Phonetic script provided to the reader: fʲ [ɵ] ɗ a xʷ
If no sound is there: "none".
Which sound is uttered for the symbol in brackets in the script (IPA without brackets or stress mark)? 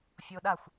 o